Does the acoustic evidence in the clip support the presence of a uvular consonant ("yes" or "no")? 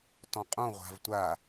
yes